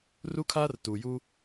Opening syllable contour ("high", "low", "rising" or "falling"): high